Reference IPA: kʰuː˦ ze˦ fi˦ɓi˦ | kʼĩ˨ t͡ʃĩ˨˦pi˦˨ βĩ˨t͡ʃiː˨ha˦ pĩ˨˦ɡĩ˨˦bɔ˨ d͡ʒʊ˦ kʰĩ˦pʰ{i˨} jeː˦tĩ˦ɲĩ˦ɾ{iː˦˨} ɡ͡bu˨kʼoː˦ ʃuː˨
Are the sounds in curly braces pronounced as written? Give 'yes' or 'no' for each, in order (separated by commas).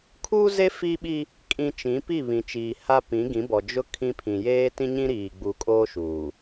no, no